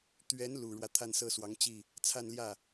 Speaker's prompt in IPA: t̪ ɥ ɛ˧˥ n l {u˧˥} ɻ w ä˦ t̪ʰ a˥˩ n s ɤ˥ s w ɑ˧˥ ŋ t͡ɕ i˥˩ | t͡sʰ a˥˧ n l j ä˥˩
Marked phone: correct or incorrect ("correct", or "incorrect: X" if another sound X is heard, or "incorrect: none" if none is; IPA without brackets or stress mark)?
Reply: incorrect: u˨˩